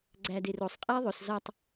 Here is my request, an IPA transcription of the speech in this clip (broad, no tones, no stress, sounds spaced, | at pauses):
ɡ͡ǀ æ d e r o sˤ qʼ e i̯ ðˤ o s z ɒ tˤ